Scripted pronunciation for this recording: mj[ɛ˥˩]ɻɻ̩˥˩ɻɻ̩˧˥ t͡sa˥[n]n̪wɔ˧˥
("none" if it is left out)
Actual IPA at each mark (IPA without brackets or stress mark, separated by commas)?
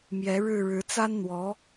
ɛ˧˥, n